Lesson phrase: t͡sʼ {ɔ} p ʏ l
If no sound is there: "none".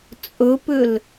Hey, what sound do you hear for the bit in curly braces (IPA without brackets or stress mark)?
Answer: ɵ